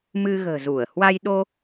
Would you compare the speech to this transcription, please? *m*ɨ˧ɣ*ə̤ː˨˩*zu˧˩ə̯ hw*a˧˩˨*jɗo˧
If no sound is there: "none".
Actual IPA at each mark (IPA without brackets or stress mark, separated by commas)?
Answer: m, ə̤ː˨˩, a˧